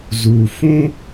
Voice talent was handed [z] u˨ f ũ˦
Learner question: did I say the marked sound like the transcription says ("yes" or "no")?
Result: yes